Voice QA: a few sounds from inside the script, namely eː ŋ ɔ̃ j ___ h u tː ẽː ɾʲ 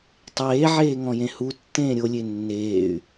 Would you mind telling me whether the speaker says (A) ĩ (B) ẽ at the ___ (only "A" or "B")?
B